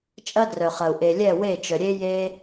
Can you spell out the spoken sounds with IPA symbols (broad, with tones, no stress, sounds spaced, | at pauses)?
t͡ʃʼ ɐ˦ d r œ˨ χ ɐ˨ u̯ ʔ e˨ lʲ ɛ˦˨ w e˦˨ t͡ʃ œ˨ ɾʲ e˦ j e˧